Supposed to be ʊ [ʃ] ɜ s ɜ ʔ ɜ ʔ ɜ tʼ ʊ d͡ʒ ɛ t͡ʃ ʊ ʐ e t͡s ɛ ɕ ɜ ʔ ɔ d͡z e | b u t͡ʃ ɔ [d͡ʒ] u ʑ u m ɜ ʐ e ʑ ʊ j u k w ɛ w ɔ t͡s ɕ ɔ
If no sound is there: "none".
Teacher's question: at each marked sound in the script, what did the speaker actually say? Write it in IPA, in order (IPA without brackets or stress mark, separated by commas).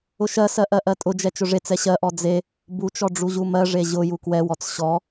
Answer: ʃ, ɖ͡ʐ